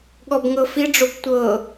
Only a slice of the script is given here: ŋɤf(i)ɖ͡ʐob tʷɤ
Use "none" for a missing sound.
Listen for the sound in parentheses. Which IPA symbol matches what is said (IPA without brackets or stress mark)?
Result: i